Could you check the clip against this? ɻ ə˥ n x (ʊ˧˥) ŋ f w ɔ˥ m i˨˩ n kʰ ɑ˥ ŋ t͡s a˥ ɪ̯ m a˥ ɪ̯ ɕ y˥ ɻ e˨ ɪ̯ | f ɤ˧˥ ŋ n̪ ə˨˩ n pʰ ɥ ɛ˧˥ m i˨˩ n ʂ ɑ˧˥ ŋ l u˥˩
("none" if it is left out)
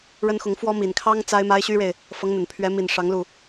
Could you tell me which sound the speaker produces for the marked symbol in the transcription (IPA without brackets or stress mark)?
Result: ʊ˧˥